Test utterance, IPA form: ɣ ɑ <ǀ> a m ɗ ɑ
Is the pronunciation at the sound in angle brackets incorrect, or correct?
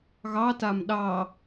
incorrect